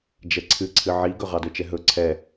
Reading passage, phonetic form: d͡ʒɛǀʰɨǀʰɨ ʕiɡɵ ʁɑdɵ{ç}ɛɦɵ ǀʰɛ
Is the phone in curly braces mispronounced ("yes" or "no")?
yes